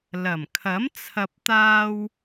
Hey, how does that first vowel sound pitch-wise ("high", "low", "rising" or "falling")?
low